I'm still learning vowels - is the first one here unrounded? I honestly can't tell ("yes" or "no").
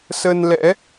yes